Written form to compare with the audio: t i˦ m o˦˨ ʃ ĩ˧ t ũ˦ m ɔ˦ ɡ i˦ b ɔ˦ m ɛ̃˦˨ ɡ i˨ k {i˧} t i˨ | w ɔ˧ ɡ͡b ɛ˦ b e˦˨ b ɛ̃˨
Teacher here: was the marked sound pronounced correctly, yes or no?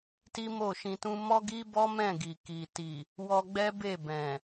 no